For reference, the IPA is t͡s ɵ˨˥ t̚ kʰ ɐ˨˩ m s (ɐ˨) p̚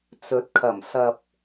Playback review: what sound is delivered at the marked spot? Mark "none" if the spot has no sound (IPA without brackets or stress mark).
ɐ˨